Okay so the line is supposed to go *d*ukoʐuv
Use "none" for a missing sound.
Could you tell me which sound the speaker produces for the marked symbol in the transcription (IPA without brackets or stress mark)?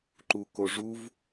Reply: ǃ